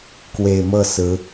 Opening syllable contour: low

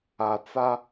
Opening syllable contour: low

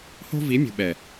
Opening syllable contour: high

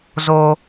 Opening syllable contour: low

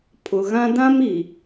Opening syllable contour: low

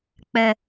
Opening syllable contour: high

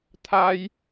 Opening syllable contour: high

